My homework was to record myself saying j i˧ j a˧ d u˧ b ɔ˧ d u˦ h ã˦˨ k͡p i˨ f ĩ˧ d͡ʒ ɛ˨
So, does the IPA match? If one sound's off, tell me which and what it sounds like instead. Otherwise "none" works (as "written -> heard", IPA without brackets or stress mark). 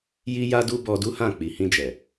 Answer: f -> h